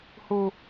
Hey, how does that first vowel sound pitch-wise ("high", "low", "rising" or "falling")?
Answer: high